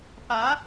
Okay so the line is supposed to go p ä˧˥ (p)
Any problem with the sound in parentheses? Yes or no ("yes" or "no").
yes